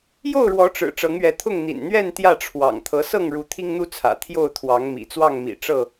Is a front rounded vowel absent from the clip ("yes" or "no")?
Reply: yes